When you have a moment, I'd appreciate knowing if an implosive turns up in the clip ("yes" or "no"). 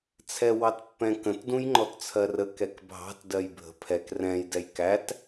no